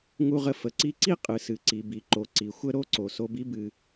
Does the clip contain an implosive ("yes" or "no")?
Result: no